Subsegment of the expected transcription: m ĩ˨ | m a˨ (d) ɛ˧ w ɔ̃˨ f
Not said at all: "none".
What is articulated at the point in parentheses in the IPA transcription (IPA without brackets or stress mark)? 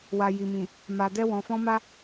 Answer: d